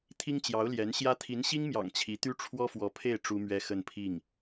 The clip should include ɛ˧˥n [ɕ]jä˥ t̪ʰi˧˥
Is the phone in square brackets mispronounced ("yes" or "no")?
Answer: no